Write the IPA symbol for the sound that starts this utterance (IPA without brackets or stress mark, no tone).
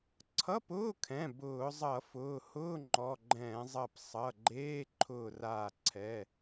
ǀʰ